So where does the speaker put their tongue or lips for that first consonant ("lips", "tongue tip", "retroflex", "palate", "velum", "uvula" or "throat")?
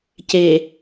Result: palate